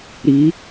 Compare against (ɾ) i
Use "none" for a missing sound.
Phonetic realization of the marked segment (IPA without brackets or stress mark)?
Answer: ɾ